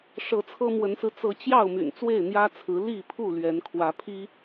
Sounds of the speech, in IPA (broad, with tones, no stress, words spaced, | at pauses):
ʂɤ˨˦t͡sʰɤ˦mwə˨˦nsɹ̩˧ t͡sɤ˨˦t͡ɕjɑ˥˨ʊ̯my̰˨˩n t͡swe˥˨ɪ̯n̪jä˦t͡sʰɹ̩˨˦ li˥˨pʰu˥˨ lɥɛ˨˦nkʰwä˨˦pʰi˦